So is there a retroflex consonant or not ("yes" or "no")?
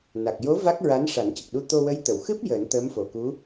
yes